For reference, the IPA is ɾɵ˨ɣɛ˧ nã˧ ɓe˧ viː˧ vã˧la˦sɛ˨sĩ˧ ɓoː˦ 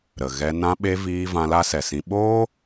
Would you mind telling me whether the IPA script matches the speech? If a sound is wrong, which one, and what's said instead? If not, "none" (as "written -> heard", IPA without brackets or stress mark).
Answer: ɵ˨ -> ə˨